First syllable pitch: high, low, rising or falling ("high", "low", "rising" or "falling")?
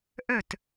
falling